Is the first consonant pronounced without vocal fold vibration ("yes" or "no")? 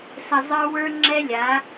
yes